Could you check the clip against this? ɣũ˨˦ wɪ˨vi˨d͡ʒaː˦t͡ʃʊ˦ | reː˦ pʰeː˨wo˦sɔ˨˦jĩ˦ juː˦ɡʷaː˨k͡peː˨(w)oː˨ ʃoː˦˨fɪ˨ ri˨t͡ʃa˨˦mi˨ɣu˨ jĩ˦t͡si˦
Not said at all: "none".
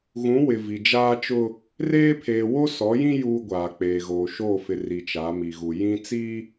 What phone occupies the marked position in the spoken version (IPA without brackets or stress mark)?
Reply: ɣ